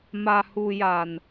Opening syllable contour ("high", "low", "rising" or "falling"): low